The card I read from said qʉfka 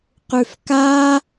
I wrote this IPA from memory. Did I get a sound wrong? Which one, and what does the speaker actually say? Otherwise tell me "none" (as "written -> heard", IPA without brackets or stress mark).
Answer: none